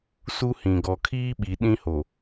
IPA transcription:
s u˦ h ĩ˨ ɡ ɔ˨ kʰ iː˦ ɓ i˨ ɗ ĩ˦ h o˨

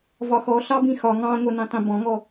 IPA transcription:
v ɒ x ɔ ɬ ɑ b ĩ x ɒ ŋ ɑ̃ ŋʷ ʌ n ĩ tˤ ĩ b ɔ̃ ŋ ɔ

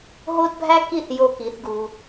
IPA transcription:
ɦ o˦ d bʱ æ˦ k i˦˨ θ j o˧ k i˨˦ θ ɡ u˧

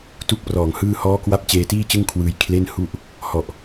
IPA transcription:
t u˥˩ k̚ p r ɔː˨˩ ŋ h ɯː˥˩ h ɔː˦˥ k w a˦˥ p̚ t͡ɕ eː˧ t iː˥˩ t͡ɕ ɯ˥˩ ŋ kʰ w ɯː˧ j kʰ l e˥˩ n h u˥˩ ʔ | h ɔ˨˩ ʔ

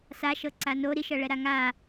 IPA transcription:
s a ʃ ɤ ǀ a n o ɾ i ʃ ɤ ɭ ɛ ɾ a ŋ a

